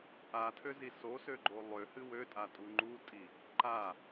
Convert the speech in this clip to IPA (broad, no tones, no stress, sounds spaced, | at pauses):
ʔ a tʰ ø z i s o s ø ɡ͡ǃ o lˠ ø h ɨ w ø tʼ a tʼ u ŋ͡ǃ u tʼ i | ǃ a